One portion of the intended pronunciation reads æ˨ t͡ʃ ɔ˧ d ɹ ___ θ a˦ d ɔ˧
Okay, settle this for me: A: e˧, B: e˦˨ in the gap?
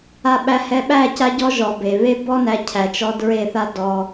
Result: B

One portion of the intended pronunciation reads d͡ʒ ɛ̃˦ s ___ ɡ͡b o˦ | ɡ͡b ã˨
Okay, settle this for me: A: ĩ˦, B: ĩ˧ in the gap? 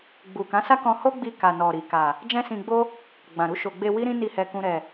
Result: B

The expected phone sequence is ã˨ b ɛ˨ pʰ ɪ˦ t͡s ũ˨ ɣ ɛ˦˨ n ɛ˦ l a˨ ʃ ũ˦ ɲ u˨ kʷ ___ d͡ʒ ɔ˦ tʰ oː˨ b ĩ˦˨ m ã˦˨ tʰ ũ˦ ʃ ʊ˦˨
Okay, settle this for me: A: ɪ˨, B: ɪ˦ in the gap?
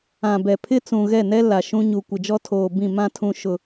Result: A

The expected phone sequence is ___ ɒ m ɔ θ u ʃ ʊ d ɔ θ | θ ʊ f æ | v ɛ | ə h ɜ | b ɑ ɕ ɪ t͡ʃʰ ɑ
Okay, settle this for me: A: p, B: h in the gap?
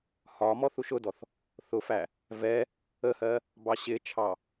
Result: B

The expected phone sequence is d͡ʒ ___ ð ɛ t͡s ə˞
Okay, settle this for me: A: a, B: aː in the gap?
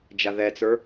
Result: A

